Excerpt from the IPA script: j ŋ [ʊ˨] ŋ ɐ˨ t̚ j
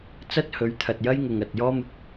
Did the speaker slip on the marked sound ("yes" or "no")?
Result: no